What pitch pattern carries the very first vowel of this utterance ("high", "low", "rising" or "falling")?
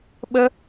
high